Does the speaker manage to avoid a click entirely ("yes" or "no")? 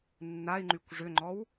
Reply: no